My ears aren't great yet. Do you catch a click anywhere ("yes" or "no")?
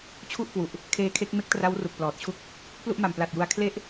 no